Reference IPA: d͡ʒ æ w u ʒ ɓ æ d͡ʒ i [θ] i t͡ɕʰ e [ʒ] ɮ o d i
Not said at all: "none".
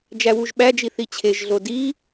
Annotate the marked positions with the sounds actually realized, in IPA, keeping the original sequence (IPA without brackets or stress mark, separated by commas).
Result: θ, ʒ